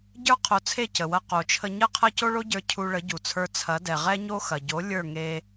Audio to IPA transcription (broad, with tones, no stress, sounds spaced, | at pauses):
ɟ ə˞˥ qʰ o˩˥ t͡sʰ e˥˩ c ə˩ w ɐ˧ q o˩ t͡ʃʰ ə˧ ɲ ɐ˥ qʰ ɐ˥ c o˥ ɭ o˥ ɟ ə˞˧ cʰ u˧ ɭ ə˩˥ ɟ u˩ t͡sʰ ə˞˧ t͡sʰ ɐ˩˥ d ɛ˩ ʁ ɛ˥ ɲ o˥ x ɐ˩ ɟ o˩˥ lʲ ə˞˥˩ ŋ e˧